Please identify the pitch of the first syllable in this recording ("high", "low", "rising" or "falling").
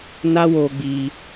high